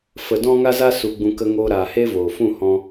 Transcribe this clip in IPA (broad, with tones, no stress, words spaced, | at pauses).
fə˧ dɔ̃˦ŋa˦za˦ su˧ɡ͡bũ˧ kə˧ŋoː˧ɾaː˨ he˦voː˨fũ˦˨ hɔ̃˧